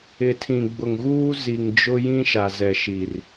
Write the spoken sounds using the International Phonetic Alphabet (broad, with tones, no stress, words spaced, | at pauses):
ɪ˨tʰĩ˨ɡ͡bʊ˨ŋɣuː˦ zi˨ŋd͡ʒʊ˦ jĩ˦ʃa˨zɛ˨ʃi˨r